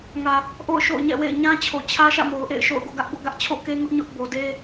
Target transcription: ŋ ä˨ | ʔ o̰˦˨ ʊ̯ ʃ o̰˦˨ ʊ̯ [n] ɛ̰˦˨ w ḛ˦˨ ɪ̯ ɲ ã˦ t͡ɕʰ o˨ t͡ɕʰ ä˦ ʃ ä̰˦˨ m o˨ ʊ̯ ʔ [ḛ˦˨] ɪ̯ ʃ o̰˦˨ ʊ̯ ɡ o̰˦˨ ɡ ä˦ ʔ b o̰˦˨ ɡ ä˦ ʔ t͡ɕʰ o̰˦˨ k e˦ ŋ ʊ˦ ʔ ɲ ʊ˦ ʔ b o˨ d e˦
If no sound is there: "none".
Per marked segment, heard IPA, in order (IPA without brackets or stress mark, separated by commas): ɲ, ḛ˦˨